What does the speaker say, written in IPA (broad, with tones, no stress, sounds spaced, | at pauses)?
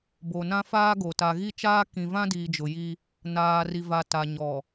b o˨ n ã˦ f aː˦ ɡ o˨ t a˨ ɣ i˦ t͡ʃ aː˦ k ĩ˨ v ã˦ d iː˨ d͡ʒ ʊ˨ j i˦ | n aː˨ r i˨ v a˨ t a˨ ɲ ɔ˨